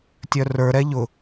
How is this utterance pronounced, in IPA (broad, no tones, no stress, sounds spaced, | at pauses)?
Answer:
tʲ œ r ə˞ ɾ ɛ ʎ ʊ